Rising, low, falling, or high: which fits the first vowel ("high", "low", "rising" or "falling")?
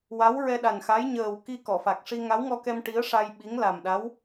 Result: rising